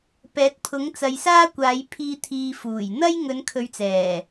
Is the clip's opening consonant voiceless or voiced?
voiceless